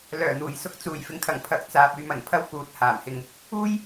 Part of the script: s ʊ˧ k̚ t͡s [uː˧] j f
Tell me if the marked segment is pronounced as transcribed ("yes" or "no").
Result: no